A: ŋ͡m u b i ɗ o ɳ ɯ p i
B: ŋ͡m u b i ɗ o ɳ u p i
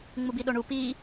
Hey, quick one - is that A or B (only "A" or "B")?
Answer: B